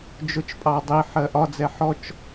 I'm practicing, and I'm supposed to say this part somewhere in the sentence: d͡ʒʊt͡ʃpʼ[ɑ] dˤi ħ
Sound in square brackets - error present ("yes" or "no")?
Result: no